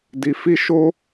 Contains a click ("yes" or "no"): no